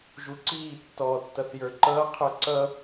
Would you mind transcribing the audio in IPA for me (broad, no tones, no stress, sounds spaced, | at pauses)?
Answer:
ʒ u ǀ iː tː ɔ tː ʌ θ j ə˞ ǃ ʌː qʰ ə˞ ǀ ʌ